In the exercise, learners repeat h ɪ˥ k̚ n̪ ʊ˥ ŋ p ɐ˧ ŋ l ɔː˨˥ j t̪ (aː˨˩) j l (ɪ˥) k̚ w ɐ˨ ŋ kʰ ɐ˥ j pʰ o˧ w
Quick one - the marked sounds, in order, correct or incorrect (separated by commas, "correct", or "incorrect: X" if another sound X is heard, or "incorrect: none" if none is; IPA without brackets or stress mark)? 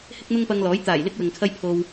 correct, correct